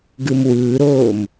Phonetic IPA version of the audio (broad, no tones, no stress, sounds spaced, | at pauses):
ɡ ɯ m w ɯː ɾ oː m